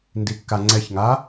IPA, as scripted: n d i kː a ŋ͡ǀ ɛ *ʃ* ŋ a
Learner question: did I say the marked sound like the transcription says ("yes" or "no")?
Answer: no